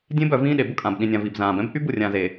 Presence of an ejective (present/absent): present